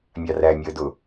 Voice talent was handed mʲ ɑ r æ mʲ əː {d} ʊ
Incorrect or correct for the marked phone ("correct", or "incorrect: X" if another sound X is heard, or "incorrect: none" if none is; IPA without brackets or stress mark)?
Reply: correct